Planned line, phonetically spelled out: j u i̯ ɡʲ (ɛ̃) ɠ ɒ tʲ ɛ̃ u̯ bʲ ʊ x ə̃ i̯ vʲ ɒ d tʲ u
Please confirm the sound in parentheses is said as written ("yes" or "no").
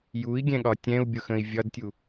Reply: yes